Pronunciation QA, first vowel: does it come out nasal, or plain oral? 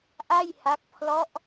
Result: oral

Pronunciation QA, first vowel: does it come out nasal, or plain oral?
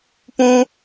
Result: nasal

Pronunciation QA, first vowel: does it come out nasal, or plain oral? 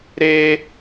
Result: oral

